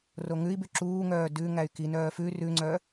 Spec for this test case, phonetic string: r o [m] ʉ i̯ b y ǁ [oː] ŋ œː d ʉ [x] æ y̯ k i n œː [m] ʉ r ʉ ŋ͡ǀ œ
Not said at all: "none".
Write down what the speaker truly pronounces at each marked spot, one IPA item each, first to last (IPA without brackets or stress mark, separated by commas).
ŋ, uː, ŋ, f